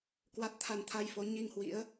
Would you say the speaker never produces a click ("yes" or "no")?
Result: yes